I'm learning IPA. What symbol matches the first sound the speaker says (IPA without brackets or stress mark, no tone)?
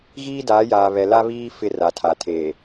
ɣ